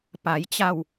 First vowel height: low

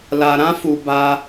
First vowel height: low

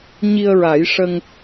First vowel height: high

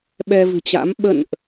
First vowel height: mid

